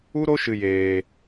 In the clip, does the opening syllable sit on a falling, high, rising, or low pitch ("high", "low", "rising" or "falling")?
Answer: high